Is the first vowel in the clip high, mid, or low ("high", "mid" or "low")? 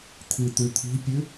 high